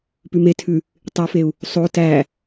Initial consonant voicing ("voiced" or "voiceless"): voiceless